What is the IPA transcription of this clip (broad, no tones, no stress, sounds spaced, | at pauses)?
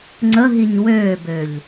ŋ͡ǀ ə ɦ i ɲ w øː b ø ʎ